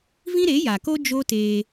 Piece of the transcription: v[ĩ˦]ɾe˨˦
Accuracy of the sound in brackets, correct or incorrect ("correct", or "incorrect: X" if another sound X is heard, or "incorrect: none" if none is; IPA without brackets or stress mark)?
correct